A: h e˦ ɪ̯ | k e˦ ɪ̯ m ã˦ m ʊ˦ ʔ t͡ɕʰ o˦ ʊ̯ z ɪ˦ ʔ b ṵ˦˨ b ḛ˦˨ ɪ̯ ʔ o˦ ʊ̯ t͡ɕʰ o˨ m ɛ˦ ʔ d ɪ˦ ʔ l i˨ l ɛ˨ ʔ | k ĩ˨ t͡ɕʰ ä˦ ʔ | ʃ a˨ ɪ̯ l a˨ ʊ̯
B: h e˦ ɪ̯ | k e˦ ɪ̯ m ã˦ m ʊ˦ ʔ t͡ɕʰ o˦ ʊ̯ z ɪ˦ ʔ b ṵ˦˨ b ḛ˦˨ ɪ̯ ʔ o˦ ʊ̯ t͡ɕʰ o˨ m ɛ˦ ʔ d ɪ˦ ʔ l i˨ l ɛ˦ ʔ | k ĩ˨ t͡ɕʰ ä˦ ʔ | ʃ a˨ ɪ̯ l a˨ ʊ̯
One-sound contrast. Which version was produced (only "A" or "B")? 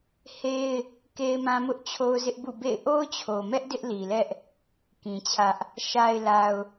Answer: B